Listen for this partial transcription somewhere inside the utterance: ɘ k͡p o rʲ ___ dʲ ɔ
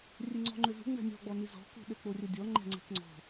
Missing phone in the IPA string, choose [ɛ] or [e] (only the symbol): ɛ